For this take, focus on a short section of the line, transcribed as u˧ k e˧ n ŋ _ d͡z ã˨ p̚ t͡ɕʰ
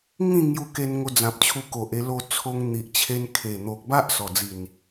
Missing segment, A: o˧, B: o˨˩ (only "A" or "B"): A